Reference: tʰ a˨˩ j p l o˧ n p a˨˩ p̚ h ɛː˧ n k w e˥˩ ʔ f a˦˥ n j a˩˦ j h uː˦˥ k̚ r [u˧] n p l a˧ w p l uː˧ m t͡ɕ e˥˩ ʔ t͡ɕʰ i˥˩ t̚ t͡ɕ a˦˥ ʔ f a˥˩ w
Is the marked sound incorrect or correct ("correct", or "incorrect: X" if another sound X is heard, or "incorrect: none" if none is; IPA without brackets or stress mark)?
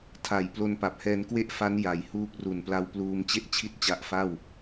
incorrect: u˨˩